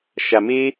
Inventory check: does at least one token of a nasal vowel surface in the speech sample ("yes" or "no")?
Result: no